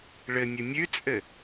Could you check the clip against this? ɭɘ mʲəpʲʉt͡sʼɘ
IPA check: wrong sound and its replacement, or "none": pʲ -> mʲ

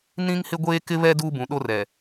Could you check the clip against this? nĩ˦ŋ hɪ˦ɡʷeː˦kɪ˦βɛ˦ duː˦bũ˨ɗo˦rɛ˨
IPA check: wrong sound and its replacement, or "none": none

